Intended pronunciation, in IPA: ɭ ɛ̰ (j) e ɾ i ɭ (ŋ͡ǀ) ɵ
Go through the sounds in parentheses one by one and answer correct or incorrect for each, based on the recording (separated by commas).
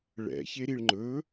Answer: incorrect, incorrect